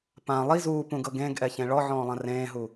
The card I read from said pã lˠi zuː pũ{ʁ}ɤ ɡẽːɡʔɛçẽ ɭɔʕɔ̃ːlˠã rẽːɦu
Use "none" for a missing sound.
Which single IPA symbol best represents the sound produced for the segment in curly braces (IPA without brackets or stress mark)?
ɡ